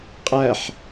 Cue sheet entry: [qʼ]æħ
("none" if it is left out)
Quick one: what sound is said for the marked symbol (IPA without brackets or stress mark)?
qʼ